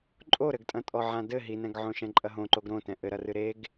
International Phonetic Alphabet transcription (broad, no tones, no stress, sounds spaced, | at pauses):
ǃʼ o ɾ ɘ ɡ tʼ ɐ̃ tʼ ɔ ʕ ã d ɘ ɦ i n ɛ̃ ɡ ʕ õ ʃ ɛ̃ ǃʼ ɐ ɦ õ ǃ o ɡ ɾ õ t ɛ̃ ʔ ɘ ɾ ɐ r ɨ ɾ e ɡ